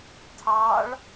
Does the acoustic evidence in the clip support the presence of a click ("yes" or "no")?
no